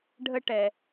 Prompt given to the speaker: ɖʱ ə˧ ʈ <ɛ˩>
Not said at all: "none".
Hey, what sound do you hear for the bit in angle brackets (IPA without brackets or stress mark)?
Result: ɛ˩